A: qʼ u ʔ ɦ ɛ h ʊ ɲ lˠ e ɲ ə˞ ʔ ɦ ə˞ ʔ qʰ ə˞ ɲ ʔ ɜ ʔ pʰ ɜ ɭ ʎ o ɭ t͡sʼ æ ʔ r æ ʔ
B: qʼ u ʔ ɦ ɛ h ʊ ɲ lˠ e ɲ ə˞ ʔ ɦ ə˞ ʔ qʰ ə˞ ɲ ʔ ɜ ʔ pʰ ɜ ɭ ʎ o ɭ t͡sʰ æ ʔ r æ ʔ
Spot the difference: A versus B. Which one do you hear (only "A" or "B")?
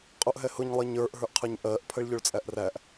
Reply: A